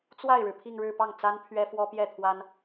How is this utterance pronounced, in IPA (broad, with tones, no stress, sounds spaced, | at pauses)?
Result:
t͡s w a˥˩ ɪ̯ ɻ ɻ̩˩ pʰ i˥˧ ŋ ɻ ɻ̩˥˧ p ɑ˥˩ ŋ t͡s a˥ n pʰ ɥ ɛ˥ f w ɔ˥ p j ɛ˥˩ t̪ʰ w a˥ n